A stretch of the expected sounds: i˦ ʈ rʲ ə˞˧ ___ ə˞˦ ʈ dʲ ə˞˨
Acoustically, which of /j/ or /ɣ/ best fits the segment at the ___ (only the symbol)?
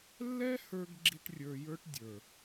j